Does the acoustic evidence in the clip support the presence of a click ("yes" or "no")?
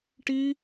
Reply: no